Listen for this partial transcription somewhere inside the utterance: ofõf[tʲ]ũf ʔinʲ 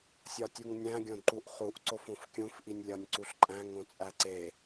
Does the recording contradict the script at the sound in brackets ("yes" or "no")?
yes